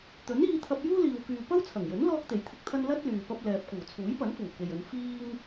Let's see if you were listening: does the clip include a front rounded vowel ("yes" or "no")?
yes